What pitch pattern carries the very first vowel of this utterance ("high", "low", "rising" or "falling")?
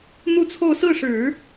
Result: falling